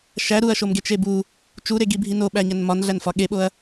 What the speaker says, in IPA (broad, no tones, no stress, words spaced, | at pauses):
ʃæ ɾuɐ̯ʃomɡet͡ʃe bu | t͡ʃuɾeɡibʱi noɓæɲæn mɒnɮænfɒ ɠeɓoɐ̯